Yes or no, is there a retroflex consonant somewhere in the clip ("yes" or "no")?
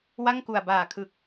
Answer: no